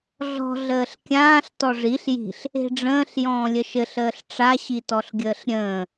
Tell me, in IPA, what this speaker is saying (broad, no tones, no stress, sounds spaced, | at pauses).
ɮ ɔ̤ ɮ əː ɬ kʲ ãː ɬ t ɔ ʐ i ɬ j i̤ ɬ | e̤ ɖ͡ʐ ə̃ː ɬ j ɔ̃ː lʲ ə ʃ ɘ ɬ əː ɬ ʈ͡ʂ a ɕ i t ɔ ɬ ɡʲ əː ɬ ɾʲ ə̃ː